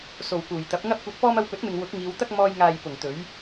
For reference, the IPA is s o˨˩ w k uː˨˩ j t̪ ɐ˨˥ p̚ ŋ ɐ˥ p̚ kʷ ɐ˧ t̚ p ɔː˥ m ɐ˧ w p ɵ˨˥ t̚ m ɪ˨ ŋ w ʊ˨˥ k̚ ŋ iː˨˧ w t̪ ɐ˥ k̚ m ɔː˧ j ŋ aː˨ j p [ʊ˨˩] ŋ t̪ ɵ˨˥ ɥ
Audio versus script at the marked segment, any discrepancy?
no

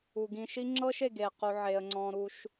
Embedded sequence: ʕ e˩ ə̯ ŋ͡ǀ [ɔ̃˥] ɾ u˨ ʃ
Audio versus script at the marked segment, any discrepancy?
yes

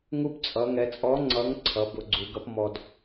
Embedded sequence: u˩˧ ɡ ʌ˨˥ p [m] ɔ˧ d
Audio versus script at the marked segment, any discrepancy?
no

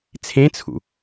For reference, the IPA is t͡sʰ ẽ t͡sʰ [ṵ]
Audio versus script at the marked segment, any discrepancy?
no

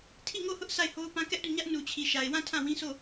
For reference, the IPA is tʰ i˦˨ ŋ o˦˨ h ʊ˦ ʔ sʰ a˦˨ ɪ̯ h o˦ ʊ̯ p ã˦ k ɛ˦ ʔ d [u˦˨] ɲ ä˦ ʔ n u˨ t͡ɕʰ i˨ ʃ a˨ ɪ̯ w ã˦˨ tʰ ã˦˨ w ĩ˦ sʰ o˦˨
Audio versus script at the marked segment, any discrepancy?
no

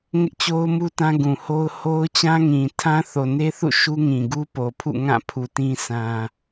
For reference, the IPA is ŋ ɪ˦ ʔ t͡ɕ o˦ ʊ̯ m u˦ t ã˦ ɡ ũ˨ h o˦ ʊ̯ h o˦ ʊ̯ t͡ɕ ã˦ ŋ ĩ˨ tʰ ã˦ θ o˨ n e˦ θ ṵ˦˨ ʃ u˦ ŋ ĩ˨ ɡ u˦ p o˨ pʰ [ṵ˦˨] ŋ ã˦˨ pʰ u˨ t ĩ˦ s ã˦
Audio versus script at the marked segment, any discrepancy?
no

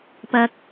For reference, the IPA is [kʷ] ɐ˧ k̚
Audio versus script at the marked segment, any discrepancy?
yes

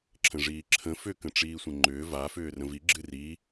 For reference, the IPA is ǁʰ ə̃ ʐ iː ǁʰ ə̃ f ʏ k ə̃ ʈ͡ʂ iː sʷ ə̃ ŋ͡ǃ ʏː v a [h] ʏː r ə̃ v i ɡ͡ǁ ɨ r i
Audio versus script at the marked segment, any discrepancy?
yes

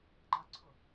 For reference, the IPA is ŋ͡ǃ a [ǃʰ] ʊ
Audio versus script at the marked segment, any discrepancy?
yes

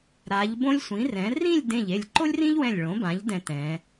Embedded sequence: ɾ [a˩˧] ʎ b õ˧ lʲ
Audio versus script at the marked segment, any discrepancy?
no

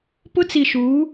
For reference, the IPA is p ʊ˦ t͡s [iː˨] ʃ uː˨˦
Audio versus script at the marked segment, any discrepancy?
yes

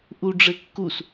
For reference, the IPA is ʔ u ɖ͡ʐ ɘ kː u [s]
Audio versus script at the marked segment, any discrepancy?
no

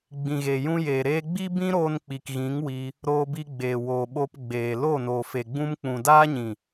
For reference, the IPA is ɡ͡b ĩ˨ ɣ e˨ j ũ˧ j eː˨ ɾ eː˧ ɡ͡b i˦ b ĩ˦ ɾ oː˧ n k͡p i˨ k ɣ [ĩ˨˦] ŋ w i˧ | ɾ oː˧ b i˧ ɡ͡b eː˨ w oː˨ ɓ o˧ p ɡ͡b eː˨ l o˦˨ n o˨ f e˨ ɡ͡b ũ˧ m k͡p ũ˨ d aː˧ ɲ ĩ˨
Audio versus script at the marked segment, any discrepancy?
no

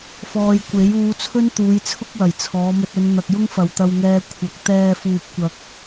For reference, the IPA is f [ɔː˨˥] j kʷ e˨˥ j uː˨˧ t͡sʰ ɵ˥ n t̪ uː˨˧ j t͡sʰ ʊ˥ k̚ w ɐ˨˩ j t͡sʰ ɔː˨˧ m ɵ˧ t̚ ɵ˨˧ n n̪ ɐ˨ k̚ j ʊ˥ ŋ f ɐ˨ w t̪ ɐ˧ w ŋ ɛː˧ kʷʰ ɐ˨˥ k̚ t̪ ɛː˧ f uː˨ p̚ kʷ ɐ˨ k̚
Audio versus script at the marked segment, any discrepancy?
yes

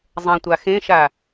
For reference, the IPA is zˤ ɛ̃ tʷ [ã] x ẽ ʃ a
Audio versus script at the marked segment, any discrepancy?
yes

